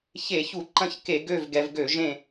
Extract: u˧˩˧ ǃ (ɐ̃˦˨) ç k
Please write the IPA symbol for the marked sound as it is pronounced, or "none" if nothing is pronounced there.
ɐ̃˦˨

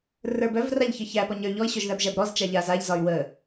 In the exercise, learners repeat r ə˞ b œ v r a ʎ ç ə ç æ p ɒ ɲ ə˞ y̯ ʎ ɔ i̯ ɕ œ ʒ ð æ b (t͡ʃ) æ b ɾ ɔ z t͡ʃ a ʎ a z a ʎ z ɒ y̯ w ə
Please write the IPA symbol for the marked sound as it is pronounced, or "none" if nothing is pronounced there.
ʒ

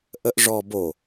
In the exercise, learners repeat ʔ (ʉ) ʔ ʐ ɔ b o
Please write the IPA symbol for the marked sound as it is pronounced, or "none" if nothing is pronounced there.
ə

